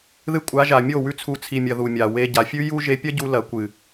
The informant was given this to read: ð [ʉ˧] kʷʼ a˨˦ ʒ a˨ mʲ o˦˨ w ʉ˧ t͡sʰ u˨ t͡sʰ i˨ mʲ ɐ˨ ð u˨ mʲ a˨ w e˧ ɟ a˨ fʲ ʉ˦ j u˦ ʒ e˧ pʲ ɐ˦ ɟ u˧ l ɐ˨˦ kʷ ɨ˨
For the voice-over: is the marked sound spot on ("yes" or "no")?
no